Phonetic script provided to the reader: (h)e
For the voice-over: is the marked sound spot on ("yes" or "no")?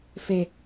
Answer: no